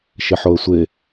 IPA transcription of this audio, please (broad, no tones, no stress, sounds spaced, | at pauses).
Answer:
ʃ ɪ ħ o ə̯ sʷ ɪ